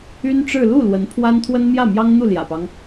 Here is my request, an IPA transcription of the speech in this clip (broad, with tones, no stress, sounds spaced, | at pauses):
y˥ n ʈ͡ʂ ɻ̩˥˧ l u˥˩ l w ə˧˥ n pʰ w a˥ n t̪ʰ w ə˥ n m j ä˥˩ m j ɑ˥ ŋ n̪ u˥˩ l j ä̰˨˩ p ɑ˦ ŋ